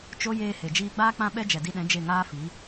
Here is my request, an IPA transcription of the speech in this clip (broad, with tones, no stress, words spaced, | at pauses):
t͡ʃo˦ jeː˧he˨d͡ʒiː˧ɡ͡baː˦ k͡pã˦ɓɛ˦ d͡ʒɛ˨di˧ɗɛ̃˨˦ d͡ʒe˦˨ŋaː˦fi˨˦